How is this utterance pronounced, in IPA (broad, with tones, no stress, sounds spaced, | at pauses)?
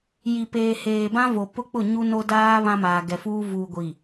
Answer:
j i˨ p eː˨ h eː˨ b ã˦ v o˨ p ʊ˦ k͡p ʊ˦˨ ɲ u˦ n o˦ d aː˦ β ã˦ m aː˨ ɡ ɛ˨ f uː˦ v uː˨ ɡʷ i˨